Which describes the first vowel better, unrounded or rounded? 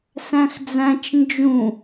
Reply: unrounded